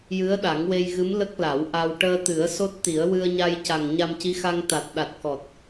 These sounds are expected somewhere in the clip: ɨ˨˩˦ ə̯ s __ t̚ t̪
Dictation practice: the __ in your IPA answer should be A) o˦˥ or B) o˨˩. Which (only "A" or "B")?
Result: A